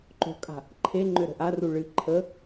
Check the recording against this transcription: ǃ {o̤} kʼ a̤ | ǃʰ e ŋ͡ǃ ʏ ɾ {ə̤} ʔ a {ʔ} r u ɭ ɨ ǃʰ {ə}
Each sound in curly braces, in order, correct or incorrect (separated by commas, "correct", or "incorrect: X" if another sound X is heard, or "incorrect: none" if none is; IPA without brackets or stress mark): correct, correct, incorrect: none, correct